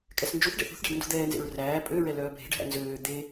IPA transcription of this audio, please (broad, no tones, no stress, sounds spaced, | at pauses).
kʼ ɛ s n d͡ʒ u θ ɖ ɛ̰ θ ṳ θ ɖ æ̤ ɖ n d ṳ d̪ ɛː n z ḛ ɹ r æː pʼ ø ɹ ɛ l œː bʱ e̤ ɖ ɦ æ̰ n z øː d̪ e